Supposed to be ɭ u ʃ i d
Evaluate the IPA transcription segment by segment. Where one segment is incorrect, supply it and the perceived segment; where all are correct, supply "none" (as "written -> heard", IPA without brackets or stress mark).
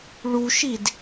none